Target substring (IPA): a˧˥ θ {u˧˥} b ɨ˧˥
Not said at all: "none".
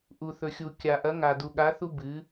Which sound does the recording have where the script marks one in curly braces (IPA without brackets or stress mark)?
u˥